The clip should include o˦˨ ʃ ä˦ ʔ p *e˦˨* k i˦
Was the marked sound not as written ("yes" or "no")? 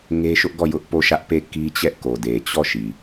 no